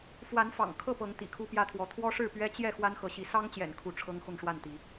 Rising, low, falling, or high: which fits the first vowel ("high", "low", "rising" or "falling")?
rising